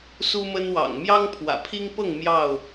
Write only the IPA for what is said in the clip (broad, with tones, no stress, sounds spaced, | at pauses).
s u˦ m ə˦ n w ɑ̰˨˩ ŋ m j ɑ˦ ŋ pʰ w ä̰˨˩ pʰ i˦ ŋ p ɤ˥˨ ŋ m j ɑ˥˨ ʊ̯